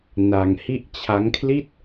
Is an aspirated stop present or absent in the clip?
present